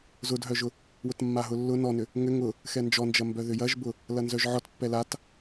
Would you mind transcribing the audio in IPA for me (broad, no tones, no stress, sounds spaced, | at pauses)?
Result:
z ʊ d ɦ œ ʒ ʊ | w ʊ t mː a ɦ ʊ lː ʊ n ɔ n ʏ | ŋ ʏ ŋ ʊ | x ɛ n d͡ʒ ɔ n d͡ʒ ɐ m b œ ð ʏ j ɐ ʒ b ʊ | l ɐ n z œ ʒ ʕ ɔ t pː ɛ l a t